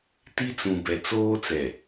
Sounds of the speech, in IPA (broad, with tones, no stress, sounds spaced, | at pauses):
t i˦ t͡s ũ˨ b ɛ˨ t͡s oː˦ t͡s ɛ˨